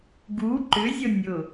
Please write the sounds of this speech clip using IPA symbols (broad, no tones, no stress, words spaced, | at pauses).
ɡu ǃʏzʲɤ nʲʊ